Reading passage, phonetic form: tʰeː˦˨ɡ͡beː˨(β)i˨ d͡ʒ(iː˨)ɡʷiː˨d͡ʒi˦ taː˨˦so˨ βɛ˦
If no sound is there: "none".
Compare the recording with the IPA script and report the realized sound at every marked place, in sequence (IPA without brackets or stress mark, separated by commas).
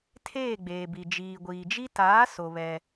b, iː˨